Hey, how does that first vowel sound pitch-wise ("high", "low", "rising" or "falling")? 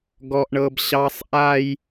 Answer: high